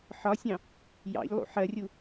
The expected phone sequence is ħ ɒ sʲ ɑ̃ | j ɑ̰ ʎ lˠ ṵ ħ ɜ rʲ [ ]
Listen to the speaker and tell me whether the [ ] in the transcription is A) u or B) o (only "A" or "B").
A